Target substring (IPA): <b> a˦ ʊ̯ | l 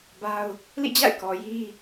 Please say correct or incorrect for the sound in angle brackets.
correct